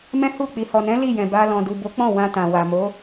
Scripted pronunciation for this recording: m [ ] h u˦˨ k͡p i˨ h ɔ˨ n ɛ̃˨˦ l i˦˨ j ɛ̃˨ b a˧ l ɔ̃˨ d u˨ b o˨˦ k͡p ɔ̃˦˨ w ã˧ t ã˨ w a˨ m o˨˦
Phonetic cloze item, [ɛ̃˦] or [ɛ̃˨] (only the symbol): ɛ̃˦